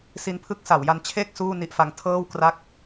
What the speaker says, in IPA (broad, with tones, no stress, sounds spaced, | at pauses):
s i˧ n pʰ ɯ˦˥ k̚ s a˩˦ w j a˧ n t͡ɕʰ eː˥˩ k̚ s uː˥˩ n i˦˥ ʔ f a˦˥ ŋ tʰ ɤː˥˩ w k r a˥˩ k̚